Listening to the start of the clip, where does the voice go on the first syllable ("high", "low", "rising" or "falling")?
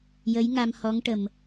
rising